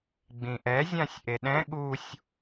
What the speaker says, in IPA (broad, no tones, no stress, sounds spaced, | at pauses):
ɡ͡b ĩ ʔ ɛ zʲ ã sʲ ʔ e ɗ ɛ̃ ɠ u sʲ